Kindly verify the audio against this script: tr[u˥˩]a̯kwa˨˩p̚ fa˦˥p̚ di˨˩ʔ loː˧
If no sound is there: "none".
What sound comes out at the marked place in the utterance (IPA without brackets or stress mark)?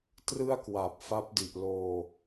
ɯ˥˩